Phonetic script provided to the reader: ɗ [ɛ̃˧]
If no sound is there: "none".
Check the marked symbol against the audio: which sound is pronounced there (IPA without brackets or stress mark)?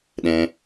ɛ̃˧